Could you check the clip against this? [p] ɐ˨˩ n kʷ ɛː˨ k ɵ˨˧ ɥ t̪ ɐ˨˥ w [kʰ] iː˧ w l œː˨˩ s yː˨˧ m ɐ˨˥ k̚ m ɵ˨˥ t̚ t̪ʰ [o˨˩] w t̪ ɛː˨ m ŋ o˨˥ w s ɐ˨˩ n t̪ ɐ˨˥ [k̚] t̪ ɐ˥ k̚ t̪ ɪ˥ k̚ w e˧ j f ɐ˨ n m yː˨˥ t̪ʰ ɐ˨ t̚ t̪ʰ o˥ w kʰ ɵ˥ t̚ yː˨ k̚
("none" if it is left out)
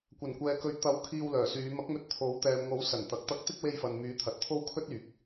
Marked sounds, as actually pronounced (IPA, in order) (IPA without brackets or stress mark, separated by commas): kʷ, kʰ, o˨˥, k̚